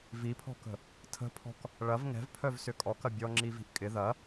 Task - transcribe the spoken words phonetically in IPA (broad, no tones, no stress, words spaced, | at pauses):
vipʰɔ̤kə̤ | tʰə̤pʰɔ̤k | ɭɐv ŋɛ̤vpʰœv sʏkʼɔkɐ bʲɔŋ͡ǁivi̤ʔ kʼɪ ðɐ